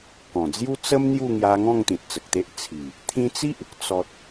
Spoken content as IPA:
kɔ̃˨˩d͡zju˦t͡sə˦m n̪ju˥˧ŋja˧ŋɔ̃˥˧ŋ t̪ĩ˨t̚t͡sə˨k̚t̪e˦ʔ t͡sʰi˨˩ | t̪ʰĩ˧t͡si˦ʔ | t͡sɔ˨t̚

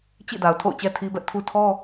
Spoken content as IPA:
t͡ɕḭ˦˨da˨ʊ̯ tʰo̰˦˨ʊ̯t͡ɕɛ˦tʰi˦ bɛ˦ʔtʰu˦ tʰɔ˦

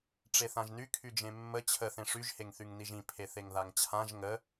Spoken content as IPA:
ʈ͡ʂeθãʒny kʰyd͡ʒẽmːə t͡ɕʰə θẽʂyʒ heŋθyŋniʒĩ pʰeθeŋðaŋt͡ɕʰãʒ ŋə

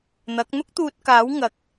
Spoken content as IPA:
n̪ɐ˨˥k̚ n̪ʊ˥k̚t̪uː˧t̚kaː˨˥w ŋɐ˨˥k̚

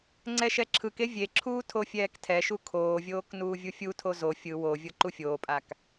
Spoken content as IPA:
ŋ͡ǀɛʃɛǁʰɯke vʲeǁʰuː tʰofʲɛːktʰɛʃu kʰoːvʲoːk nuːvʲufʲutʰo zo fʲɯ wovʲɤ ǃufʲoːpʼak

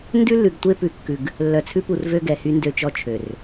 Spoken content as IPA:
ndʉ˦lːʉ˨ɡ tʷe˦pʉ˨kːʉ˨ɡ | lːœ˨t͡sʰʉ˦pu˨r vø˦ɡɛ˨hy˦ ndø˦t͡ʃɔ˦ t͡ʃʰø˨r

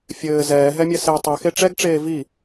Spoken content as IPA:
fʲɘː zɛːɦɛmʲɛ se tˤixe ʈ͡ʂɛɡʈ͡ʂeː vi

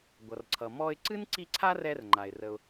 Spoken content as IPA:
ɡʷʌ˩rǀʰʌ˩ mɔ˧ɪ̯ǀɨ˥n ǀi˧ ǀʰa˥rɛ˧rŋ͡ǃa˩ɪ̯ rə˩ʊ̯

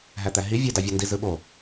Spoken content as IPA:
ɦæt̪æɦi vʲe dɑvʲondi zɯɓo

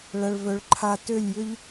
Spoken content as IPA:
ɭɐ˨ɭvœ˨ɭǃʰa˧ tø˦˨lʲjʏ˦ʎ

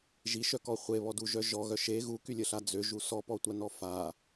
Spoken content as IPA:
ʒiʃœkɔ χʷeβɔdu ʒœʒɔ ɣœʃe ɣukylʲəɬa d͡zøʒu sɔpɔtʷa nɔfa

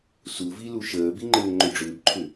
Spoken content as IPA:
suvi luʃəːbi ŋ͡ǃɘːŋ͡ǃʏɖ͡ʐʏːbǃʰʏ

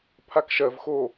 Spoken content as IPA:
pʰakʃɜv xo

